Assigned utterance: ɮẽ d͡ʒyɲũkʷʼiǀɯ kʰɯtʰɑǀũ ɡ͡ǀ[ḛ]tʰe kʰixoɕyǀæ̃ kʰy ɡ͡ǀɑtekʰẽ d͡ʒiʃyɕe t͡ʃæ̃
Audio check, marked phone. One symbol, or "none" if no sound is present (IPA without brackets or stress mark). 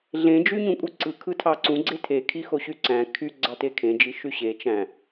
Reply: e